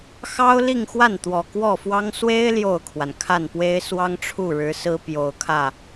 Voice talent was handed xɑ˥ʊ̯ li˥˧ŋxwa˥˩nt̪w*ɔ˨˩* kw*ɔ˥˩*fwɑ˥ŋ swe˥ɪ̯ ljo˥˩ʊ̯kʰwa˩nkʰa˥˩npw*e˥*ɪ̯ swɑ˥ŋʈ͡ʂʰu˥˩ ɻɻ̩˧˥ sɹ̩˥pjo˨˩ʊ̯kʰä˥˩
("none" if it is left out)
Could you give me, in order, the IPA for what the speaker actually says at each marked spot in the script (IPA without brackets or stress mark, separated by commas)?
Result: ɔ˨˩, ɔ˥˩, e˥